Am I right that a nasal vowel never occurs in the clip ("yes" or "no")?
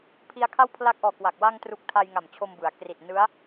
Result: yes